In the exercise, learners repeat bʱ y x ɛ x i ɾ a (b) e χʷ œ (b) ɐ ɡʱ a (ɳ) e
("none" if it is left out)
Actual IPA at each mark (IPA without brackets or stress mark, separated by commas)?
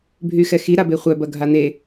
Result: b, b, n̪